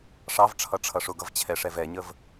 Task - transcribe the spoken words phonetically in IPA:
ʂ ɑ v ʈ͡ʂʰ ʌ ʈ͡ʂʰ ʌ ʂ ʊ ɡ ʌ v t͡ɕʰ ɛ ʂ ɛ v ɛ ɲ ə v

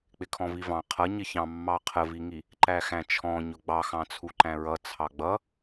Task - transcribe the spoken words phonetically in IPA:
k͡p ɪ kʰ ɔ̃ v i v ɑ̃ qʰ ʌ ɲ ɪ ç ɑ̃ mː ɑ qʰ ə v i ŋ i | ǃ æ x æ̃ t͡ʃʰ ɔ̃ ɲ ʊ ɡ͡b ɑ x ɑ̃ t͡sʰ u ǃ æ̃ ɹ ʌ t͡sʰ ɑ ɡ͡b ʌ

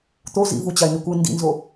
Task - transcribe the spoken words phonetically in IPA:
t̪ o z ḭ v u t͡ɕ a ɪ̯ n i kʷ ɯ n d ḭ n z o

